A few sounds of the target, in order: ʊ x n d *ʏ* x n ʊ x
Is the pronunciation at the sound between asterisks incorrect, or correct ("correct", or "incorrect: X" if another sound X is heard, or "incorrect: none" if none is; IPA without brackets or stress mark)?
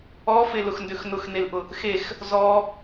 correct